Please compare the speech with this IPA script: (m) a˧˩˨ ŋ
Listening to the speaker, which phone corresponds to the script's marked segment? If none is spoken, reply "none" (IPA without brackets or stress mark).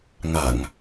ŋ